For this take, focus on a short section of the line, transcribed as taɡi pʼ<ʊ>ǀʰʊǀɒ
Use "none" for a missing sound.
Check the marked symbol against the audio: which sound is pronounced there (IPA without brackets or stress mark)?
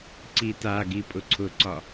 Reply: ʊ